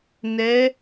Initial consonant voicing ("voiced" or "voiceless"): voiced